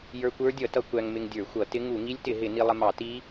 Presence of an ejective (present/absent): absent